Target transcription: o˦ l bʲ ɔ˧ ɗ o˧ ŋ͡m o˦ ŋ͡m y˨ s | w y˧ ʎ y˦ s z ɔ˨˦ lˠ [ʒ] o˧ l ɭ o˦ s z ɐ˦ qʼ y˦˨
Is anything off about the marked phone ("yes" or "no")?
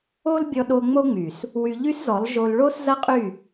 no